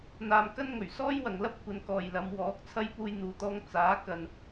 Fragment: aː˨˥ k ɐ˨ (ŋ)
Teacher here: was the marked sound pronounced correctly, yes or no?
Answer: no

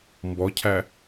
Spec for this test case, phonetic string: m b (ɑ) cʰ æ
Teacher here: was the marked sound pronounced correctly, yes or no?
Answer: no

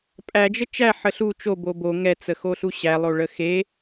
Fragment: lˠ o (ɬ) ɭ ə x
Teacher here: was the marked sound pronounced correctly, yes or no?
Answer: no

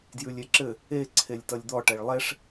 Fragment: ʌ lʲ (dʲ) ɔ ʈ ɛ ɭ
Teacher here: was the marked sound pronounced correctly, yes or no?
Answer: no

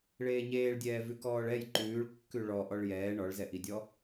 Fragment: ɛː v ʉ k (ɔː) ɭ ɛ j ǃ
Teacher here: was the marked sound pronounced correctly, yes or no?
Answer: yes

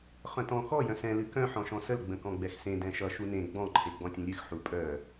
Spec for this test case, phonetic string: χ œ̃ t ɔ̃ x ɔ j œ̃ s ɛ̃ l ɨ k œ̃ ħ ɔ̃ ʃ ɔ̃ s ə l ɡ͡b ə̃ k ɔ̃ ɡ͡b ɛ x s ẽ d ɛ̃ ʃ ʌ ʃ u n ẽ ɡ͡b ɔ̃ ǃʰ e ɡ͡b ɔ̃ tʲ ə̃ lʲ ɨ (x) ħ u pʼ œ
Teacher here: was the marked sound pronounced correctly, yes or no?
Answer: yes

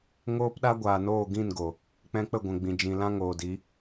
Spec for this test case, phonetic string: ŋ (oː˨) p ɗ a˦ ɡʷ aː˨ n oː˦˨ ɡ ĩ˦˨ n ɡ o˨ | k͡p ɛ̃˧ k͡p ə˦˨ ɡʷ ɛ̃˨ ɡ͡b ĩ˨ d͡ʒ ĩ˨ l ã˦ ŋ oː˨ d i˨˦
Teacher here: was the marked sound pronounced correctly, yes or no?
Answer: no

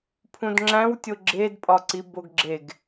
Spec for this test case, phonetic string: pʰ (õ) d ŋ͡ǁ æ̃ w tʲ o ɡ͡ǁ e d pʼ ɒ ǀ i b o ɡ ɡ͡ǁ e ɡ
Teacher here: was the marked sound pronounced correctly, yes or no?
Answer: no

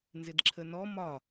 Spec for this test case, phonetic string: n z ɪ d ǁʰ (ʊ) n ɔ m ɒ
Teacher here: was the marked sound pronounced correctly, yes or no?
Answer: no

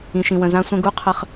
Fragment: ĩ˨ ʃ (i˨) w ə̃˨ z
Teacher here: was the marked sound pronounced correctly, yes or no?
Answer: no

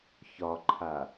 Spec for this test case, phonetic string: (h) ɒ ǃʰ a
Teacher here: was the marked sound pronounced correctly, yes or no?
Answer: no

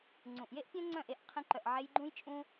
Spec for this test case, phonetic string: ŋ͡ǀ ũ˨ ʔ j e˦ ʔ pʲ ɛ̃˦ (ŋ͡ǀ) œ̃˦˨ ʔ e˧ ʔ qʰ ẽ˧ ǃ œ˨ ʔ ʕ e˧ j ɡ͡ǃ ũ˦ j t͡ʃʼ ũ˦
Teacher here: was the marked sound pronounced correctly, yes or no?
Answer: yes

